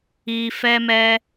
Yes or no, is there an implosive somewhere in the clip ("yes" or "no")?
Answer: no